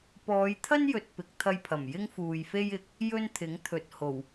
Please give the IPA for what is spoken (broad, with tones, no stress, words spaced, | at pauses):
pɔː˨˧jt̪ʰɐ˥njɵ˨t̚ pɪ˨˥k̚t̪ʰɐ˧jpʰɐ˨˩m jɪ˥ŋfuː˨jfe˥j ɪ˨k̚ | jɵ˥nt̪ʰɪ˨˥ŋt̪ʰɵ˨t̚ho˨˩w